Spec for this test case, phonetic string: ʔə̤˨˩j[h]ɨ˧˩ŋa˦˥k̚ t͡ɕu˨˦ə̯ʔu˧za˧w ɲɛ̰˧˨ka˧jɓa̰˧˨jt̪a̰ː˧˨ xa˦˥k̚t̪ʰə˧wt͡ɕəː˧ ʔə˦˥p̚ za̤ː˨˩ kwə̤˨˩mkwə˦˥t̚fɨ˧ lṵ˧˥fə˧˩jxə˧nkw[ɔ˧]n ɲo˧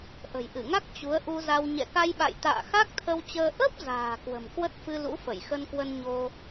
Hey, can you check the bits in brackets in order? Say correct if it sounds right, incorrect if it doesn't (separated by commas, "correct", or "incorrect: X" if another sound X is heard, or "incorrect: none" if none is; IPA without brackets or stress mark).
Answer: incorrect: ʔ, incorrect: ə˧